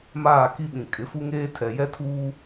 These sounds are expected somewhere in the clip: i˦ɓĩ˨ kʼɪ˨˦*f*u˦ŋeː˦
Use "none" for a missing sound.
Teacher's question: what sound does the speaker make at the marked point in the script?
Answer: f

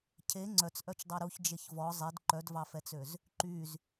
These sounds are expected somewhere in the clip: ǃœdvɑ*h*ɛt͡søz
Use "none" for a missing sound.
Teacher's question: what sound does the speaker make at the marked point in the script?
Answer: f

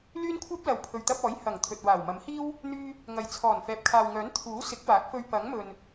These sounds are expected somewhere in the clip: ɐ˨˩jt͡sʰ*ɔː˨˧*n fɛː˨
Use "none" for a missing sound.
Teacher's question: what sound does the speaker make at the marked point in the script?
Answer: ɔː˨˩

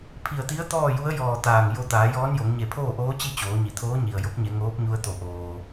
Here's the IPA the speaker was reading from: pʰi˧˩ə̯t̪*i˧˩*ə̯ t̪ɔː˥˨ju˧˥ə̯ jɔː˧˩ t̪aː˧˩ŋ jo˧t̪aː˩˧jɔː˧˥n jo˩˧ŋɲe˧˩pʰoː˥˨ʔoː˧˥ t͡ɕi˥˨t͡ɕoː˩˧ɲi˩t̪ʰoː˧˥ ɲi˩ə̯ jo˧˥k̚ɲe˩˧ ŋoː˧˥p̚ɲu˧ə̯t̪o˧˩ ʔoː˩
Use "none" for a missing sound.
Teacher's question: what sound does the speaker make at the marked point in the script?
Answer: i˧˥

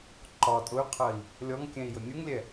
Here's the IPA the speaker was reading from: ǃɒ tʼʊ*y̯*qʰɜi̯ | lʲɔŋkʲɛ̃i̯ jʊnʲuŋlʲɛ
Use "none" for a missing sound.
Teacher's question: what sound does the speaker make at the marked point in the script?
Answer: y̯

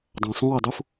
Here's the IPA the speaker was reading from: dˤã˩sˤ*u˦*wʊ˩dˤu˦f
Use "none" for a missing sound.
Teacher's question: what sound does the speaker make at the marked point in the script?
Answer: ũ˦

